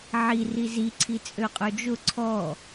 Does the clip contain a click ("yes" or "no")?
yes